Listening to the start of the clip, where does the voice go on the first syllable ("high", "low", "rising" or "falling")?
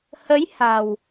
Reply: rising